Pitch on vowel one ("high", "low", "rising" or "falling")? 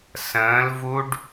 rising